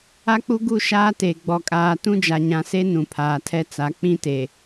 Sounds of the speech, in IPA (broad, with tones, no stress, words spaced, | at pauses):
a˦k͡pu˦ɡu˦˨ ʃaː˦te˨ ɡ͡bɔ˨kʼaː˨ tũ˦d͡ʒa˨ɲã˨se˦ nũ˨pʰaː˨tʰɛ˦t͡sa˨˦ k͡pĩ˦te˨